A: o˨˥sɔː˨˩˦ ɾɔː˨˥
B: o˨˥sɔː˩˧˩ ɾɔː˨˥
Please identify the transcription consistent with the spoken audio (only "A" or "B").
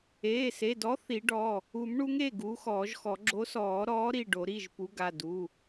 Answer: A